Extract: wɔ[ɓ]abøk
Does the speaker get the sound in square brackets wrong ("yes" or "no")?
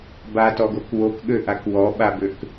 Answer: no